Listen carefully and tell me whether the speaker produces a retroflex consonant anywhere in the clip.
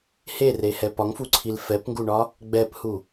yes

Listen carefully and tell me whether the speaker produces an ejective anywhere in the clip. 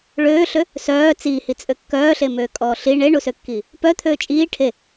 yes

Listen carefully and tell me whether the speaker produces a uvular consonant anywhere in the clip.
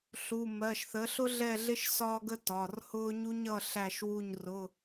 no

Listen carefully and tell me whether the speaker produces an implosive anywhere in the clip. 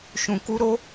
no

